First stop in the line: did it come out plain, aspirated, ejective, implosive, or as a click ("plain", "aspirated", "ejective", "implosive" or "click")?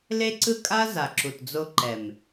click